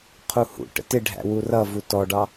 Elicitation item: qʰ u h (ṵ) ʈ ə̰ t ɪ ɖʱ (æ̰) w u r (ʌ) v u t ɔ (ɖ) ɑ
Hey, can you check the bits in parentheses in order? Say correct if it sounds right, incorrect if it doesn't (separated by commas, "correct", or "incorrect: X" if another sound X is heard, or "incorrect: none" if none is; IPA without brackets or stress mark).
correct, correct, correct, correct